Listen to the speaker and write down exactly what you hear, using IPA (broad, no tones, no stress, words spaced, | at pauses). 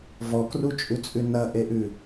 vɔkrut͡ʃʼʉt͡sʼʉ nɐʔeʔʉ